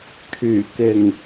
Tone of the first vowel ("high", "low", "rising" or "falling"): low